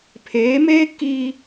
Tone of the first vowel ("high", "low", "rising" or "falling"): rising